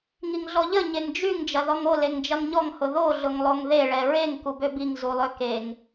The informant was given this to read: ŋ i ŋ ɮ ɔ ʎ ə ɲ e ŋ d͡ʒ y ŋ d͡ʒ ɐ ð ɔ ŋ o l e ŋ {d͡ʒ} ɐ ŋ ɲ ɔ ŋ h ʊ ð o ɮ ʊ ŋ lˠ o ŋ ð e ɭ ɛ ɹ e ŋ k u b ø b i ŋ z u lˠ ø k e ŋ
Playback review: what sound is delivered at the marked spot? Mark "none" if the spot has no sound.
d͡ʒ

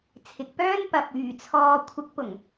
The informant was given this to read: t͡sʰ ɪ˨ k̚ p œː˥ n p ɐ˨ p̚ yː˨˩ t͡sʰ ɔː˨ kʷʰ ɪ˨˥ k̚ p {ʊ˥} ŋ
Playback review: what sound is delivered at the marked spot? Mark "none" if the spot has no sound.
ʊ˨˩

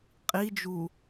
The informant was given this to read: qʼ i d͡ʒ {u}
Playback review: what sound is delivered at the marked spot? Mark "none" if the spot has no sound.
u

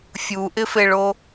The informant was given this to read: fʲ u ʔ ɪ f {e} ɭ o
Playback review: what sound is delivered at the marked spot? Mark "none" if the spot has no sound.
e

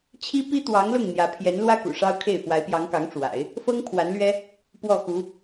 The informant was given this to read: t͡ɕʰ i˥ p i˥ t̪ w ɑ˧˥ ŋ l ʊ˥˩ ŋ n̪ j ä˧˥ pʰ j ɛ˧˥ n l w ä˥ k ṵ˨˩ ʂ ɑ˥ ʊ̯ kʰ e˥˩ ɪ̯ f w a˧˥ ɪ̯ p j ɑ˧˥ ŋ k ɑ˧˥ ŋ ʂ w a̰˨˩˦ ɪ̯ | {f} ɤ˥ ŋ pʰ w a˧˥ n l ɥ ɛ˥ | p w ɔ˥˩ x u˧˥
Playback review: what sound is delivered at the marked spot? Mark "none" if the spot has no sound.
f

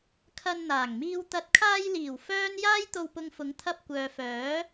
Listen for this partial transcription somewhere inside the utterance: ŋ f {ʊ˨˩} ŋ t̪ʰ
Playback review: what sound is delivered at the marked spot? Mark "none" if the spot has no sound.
ʊ˨˥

